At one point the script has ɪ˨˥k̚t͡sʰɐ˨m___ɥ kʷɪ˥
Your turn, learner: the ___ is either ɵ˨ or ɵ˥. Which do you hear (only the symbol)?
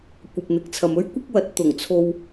ɵ˥